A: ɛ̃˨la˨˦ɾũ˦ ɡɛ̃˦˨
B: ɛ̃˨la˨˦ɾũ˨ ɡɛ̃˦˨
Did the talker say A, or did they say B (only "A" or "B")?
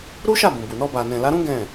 A